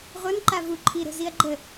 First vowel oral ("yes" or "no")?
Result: yes